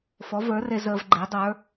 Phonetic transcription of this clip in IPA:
fɔ˩˥və˞˩˥re˧ zəː˧vɡ͡ǃe˩˥ dˤə˞˩˥

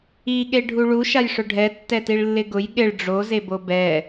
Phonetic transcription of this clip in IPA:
iɠe ɖʱuɭu ʃajʂʊɖʱɛ tːɛtiɭlːɪɡʊj ɠɪɭ ɖ͡ʐozebo bɛ

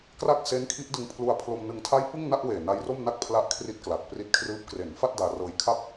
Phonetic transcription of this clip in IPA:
kra˥˩k̚se˦˥nkʰi˦˥ʔ dɯ˧ŋ pʰlu˧a̯ pʰlo˧mnɯ˧ŋtʰa˥˩j pɯ˥˩ŋna˥˩ʔweː˨˩ na˦˥jro˥˩mna˥˩k̚ pʰla˦˥ʔkʰri˦˥t̚ kla˨˩k̚pri˦˥t̚kʰrɯː˦˥p̚ kre˩˦nfa˥˩t̚ daː˧rɤː˧j kʰa˥˩p̚

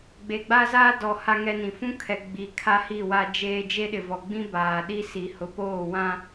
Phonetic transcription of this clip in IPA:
ɡ͡be˨ɡ͡ba˦zaː˦dɔ˨ ha˦ŋɛ˦nĩ˨ fũ˦kʰɛ˨ ɡ͡bi˨kʰa˦hi˦˨ wa˦d͡ʒeː˦ d͡ʒe˦ɗɪ˨vɔ˨ ɡ͡bĩ˦baː˨ɗi˦si˨ hʊ˨˦poː˦˨wã˦

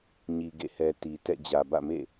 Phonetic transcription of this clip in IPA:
ɲi˨ɡḛ˦˨hɛ˨ ti˨ tɛ̰˦˨ d͡ʑä˨bä̰˦˨mḛ˦˨

